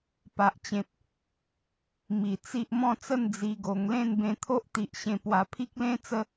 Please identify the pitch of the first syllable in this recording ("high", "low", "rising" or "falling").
low